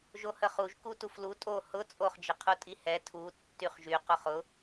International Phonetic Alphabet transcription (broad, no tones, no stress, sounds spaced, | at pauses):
ʒ o h ə χ u ʒ k u t u f l u tʼ o h ʊ t͡sʼ o χ d͡ʒ ə qʰ u tʼ i h ɛ tʰ u tː y χ ʒ y q ʊ χ ʊ